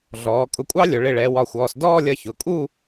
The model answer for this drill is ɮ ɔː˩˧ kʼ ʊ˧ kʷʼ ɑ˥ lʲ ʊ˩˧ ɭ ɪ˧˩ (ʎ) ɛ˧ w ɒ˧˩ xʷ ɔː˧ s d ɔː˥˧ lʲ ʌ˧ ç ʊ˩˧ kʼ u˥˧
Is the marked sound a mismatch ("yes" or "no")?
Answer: yes